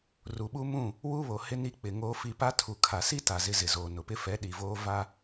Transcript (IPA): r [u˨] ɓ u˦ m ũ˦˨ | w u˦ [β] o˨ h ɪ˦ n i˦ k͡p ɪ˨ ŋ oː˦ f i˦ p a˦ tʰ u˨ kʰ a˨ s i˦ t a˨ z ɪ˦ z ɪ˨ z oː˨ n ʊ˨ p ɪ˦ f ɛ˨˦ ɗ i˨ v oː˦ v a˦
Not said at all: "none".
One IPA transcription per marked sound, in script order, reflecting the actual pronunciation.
u˨, β

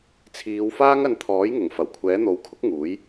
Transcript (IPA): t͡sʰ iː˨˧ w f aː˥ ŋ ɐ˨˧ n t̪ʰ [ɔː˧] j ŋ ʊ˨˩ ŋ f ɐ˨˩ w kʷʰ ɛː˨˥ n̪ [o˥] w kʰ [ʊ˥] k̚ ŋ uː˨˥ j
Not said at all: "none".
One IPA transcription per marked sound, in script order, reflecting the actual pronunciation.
ɔː˨˥, o˨˥, ʊ˥

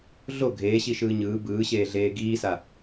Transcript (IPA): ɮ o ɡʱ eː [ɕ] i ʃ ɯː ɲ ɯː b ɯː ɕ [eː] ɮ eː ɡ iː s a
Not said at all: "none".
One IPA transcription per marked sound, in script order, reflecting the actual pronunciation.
ɕ, eː

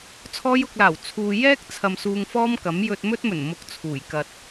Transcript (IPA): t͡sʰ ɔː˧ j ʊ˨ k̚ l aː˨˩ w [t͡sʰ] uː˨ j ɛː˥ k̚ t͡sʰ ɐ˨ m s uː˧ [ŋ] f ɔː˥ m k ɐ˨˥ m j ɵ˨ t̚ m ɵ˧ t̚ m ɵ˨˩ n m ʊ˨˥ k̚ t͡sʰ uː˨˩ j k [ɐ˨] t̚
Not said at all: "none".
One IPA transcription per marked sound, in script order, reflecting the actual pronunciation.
t͡sʰ, ŋ, ɐ˨

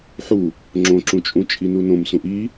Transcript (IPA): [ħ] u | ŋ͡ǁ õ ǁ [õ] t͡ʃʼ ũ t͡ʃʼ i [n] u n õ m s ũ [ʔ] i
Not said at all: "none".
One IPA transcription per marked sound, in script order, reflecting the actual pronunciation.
ħ, ũ, n, ʔ

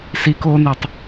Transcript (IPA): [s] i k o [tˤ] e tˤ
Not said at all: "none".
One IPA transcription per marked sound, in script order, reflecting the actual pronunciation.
s, n

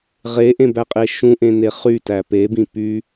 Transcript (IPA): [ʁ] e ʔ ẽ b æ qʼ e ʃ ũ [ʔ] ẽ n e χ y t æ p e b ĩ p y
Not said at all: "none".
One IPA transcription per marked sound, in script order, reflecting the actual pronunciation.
ʁ, ʔ

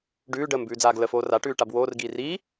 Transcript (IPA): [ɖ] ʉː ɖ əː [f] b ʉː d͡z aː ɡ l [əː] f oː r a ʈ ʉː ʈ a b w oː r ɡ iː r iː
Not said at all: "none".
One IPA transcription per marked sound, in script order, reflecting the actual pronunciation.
ɖ, m, ə

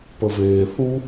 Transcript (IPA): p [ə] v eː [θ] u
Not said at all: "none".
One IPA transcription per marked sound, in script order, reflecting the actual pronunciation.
ə, θ

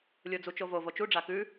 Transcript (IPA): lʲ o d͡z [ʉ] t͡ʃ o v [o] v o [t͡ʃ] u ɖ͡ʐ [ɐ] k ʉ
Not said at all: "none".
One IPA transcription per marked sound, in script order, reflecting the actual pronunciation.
u, o, t͡ʃ, a

